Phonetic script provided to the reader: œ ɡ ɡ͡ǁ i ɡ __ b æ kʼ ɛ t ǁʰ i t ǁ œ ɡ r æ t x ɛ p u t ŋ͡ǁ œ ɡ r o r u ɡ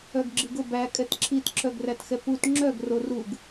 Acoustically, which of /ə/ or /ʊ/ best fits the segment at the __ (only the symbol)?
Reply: ʊ